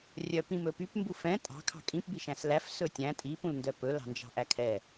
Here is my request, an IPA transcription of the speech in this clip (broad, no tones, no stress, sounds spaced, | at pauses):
rʲ œ p ĩ m ɵ p y p m b u f ɛ̃ tʼ ɑ̤ kʰ ɑ̤ kʼ ĩ p b i ʃ æ̃ s l æ f s ɵ tʲ æ̃ tʼ i p ũ l n d œ p ɵ l ɑ̤ n d͡ʒ ɑ̤ ʔ æ kʰ ɛ